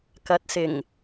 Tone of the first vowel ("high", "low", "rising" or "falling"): rising